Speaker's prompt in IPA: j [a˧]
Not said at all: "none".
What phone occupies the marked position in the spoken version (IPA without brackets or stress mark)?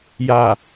a˧˩